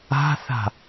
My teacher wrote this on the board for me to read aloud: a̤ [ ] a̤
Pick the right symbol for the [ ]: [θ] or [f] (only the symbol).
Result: θ